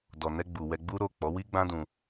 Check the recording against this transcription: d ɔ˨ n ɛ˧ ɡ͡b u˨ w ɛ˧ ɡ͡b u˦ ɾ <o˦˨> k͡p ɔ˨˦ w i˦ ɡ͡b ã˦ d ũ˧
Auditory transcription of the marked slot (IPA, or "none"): o˦˨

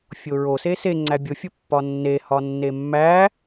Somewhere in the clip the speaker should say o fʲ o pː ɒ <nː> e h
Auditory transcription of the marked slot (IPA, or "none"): nː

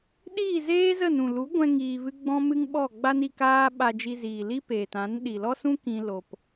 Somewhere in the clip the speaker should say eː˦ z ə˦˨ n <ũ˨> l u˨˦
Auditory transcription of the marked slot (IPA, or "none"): ũ˨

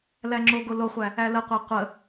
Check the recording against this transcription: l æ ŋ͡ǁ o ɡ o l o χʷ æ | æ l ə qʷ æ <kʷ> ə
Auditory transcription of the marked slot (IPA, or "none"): qʷ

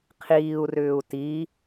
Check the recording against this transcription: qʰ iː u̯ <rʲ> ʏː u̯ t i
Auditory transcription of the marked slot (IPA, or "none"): r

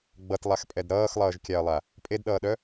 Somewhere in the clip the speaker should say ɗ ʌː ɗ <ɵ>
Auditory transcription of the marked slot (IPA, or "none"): œ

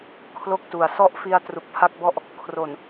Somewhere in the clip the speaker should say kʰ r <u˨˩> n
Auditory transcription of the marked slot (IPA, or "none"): o˨˩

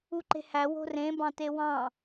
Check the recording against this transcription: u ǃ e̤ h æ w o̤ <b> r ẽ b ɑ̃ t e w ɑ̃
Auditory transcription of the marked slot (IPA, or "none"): none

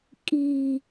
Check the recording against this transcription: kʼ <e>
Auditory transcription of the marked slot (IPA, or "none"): i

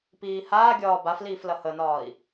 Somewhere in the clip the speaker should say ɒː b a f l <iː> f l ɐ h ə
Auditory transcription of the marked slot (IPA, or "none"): iː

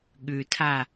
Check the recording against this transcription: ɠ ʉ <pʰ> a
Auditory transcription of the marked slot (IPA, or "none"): tʰ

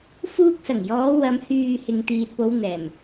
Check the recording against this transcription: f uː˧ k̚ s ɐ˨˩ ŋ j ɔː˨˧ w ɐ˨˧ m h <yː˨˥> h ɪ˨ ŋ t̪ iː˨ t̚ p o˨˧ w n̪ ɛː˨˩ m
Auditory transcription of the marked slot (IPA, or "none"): yː˨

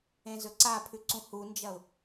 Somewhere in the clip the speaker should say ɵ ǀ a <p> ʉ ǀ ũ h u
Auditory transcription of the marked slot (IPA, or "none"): pʰ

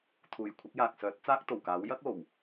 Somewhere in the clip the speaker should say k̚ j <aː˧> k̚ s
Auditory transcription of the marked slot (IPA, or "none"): aː˨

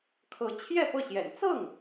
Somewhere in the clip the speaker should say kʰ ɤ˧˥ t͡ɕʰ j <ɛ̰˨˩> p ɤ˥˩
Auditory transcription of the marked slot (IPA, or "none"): ɛ˥˧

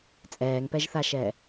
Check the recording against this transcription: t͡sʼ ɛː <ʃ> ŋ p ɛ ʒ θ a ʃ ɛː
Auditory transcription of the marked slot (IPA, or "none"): none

